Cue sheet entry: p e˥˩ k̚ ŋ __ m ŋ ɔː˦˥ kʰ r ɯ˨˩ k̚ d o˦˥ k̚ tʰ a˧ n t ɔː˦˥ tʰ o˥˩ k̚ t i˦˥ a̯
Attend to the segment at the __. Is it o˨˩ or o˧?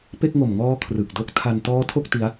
o˨˩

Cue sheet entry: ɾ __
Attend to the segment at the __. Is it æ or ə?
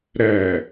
æ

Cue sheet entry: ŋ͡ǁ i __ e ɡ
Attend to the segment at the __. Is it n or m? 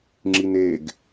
n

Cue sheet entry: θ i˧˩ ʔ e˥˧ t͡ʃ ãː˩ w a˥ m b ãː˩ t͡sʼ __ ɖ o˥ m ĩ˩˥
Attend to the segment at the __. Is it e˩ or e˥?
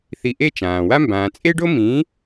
e˥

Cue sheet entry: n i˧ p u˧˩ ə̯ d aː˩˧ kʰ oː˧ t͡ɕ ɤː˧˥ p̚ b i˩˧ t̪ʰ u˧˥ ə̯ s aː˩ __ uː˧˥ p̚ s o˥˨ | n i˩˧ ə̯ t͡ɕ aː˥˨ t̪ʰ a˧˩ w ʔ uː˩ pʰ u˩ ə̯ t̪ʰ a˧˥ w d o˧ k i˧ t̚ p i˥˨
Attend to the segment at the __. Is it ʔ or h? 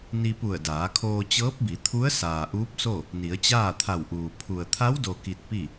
ʔ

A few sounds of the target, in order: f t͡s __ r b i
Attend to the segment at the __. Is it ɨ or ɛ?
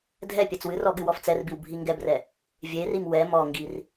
ɛ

